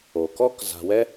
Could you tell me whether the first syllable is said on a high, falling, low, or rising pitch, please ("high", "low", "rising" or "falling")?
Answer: low